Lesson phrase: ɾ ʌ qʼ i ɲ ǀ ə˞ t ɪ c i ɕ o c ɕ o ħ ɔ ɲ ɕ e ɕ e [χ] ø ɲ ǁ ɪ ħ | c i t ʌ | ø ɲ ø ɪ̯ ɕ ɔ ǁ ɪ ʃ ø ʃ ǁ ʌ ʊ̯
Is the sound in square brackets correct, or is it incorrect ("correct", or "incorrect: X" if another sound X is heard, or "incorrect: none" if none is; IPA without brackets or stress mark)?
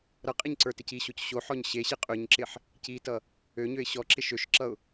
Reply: incorrect: qʼ